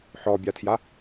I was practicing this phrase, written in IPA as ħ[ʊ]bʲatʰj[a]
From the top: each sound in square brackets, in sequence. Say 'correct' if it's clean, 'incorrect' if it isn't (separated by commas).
incorrect, correct